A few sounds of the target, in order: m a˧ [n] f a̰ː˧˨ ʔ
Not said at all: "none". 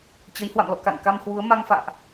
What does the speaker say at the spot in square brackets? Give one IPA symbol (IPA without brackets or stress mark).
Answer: ŋ